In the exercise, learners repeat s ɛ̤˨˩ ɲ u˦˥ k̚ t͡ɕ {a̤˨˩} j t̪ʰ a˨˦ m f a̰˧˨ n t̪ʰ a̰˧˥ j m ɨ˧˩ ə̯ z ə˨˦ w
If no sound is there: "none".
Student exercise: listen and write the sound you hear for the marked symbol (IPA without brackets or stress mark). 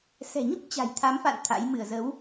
a̤˨˩